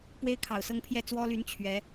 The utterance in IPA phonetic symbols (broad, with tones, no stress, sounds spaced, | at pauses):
p w e˥ ɪ̯ kʰ ɑ˨˩ ʊ̯ s ɤ˥˧ ŋ pʰ j ɛ˥˩ t͡s w ɔ˥ l y˧˥ n t͡ɕʰ ɥ ɛ˧˥